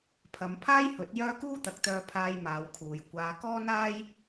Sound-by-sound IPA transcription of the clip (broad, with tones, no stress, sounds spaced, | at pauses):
pʰ ɐ˨˧ m pʰ aː˥ j h ɵ˨˥ t̚ j œː˥ k uː˥ t̪ ɐ˨˥ k̚ t̪ œː˧ pʰ aː˧ j m aː˨˧ w kʰ uː˨ j kʷ aː˨˧ k ɔː˥ n aː˥ j